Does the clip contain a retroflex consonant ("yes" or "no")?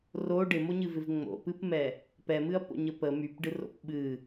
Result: yes